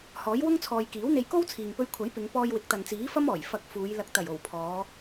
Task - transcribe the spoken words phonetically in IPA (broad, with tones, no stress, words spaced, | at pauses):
hɔː˨˥jwʊ˥ŋt͡sʰɔː˨j kiː˨˥wn̪e˧jko˥w t͡sʰiː˨ŋpɵ˧ɥkʷʰɐ˨˥j pɪ˨˧ŋ pɔː˧jwɪ˨˥k̚t̪ɐ˨nt͡siː˨˥ fɐ˥mɔː˨˩j fɐ˧k̚fuː˨˧j lɐ˨k̚t̪ɐ˨˩jo˨˩w pʰɔː˨˧